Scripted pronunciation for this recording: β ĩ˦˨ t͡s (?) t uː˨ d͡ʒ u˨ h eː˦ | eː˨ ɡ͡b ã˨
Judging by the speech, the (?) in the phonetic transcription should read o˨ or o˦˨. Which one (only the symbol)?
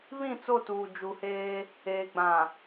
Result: o˦˨